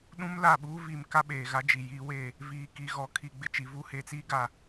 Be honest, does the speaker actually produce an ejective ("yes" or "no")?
no